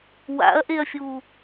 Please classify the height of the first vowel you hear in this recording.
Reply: low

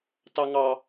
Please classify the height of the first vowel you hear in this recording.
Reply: low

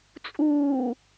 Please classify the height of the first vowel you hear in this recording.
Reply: high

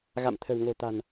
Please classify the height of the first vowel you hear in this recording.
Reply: low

